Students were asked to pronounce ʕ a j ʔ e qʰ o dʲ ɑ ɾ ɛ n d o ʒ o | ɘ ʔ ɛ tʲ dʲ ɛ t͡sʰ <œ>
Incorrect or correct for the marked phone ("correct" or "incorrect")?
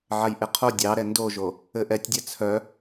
correct